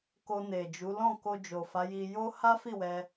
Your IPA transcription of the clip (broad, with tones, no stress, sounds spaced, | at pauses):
k o˧ n e˨ d͡ʒ u˨˦ l ɔ̃˦˨ k o˧ d͡ʒ o˨ f a˨˦ j i˧ j o˦ h a˦ f i˦˨ w ɛ˧